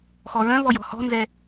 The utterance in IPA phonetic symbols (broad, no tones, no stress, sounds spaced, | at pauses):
x ɔ ɹ œ̃ v ɔ j ɔ̤ h ɔ̤ n z ɛ